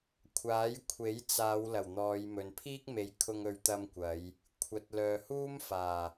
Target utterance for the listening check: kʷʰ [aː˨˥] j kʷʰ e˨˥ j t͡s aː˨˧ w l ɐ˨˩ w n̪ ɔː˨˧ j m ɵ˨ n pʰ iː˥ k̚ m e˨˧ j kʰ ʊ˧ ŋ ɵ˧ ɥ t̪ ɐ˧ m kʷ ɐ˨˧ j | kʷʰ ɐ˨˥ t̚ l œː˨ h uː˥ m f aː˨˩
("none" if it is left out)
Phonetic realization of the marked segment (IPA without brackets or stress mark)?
aː˨˥